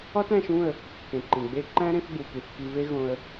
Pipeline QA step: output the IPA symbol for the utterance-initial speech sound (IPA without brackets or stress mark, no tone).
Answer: ɒ